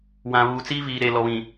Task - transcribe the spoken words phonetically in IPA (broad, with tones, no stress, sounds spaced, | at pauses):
w ã˨ β uː˨ t͡s iː˦ v iː˨ ɾ eː˨ l ɔ˨ β ĩ˨